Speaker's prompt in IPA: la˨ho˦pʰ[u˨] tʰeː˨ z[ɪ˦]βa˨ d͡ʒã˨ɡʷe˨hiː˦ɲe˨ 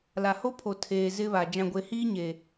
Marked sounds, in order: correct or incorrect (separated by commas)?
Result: incorrect, correct